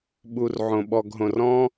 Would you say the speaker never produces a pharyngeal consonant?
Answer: no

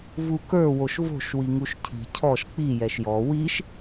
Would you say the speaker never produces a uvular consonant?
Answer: yes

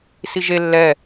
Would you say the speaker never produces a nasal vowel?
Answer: yes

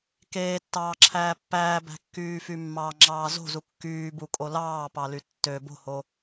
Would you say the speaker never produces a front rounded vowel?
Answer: no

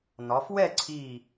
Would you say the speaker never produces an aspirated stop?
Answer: no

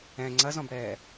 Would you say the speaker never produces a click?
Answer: no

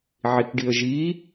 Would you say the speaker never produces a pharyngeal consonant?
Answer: no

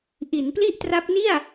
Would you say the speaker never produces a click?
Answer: yes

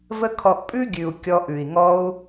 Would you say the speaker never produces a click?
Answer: yes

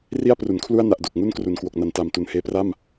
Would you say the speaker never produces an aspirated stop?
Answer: no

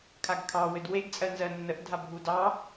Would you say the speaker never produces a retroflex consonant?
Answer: yes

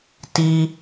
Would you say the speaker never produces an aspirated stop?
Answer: yes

